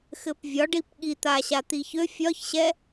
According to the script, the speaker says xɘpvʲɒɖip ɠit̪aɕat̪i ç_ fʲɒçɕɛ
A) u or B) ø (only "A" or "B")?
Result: B